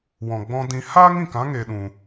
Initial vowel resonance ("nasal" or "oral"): nasal